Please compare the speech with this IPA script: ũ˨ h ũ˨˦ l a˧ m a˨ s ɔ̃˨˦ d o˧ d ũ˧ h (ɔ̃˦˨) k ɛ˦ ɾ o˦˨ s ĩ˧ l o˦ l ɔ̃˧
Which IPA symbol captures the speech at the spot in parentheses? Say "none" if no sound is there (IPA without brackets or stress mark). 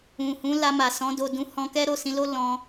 ɔ̃˧